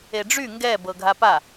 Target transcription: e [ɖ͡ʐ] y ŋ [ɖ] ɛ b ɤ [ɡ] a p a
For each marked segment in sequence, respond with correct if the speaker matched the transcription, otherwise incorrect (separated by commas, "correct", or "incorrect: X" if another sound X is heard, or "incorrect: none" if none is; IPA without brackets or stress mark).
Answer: correct, incorrect: ɡ, incorrect: ɡʱ